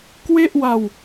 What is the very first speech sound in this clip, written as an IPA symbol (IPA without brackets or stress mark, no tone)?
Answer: k